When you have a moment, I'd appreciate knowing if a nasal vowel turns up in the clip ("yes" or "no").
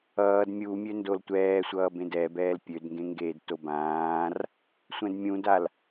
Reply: yes